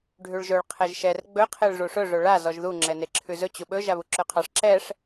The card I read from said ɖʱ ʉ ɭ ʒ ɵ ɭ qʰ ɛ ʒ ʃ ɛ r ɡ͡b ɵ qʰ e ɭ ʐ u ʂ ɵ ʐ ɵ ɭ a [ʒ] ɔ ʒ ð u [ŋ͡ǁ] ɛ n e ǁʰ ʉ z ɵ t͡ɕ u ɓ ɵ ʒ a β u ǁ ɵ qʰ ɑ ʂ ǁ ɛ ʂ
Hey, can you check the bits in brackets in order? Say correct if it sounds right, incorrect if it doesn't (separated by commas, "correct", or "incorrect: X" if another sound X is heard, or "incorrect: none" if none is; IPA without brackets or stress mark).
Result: incorrect: z, correct